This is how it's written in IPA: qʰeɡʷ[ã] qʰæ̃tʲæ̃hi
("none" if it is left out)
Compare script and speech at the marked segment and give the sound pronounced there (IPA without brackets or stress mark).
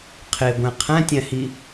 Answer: æ̃